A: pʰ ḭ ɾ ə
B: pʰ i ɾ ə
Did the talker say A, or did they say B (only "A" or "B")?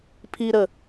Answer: B